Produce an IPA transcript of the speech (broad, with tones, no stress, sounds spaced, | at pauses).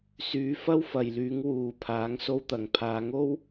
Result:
s yː˨˥ f ɐ˥ w f ɐ˨ j l yː˨˥ ŋ w uː˨ pʰ aː˨˥ ŋ s o˥ w t̪ ɐ˨ ŋ pʰ aː˨˧ ŋ o˥ w